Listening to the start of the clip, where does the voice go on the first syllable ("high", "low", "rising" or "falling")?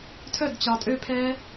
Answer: falling